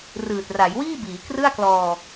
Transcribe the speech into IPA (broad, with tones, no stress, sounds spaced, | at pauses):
r ɯː˨˩ t̚ r a˩˦ j w iː˥˩ b iː˩˦ k r ɯ˥˩ a̯ k l ɔː˧